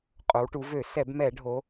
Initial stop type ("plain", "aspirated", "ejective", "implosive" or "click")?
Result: ejective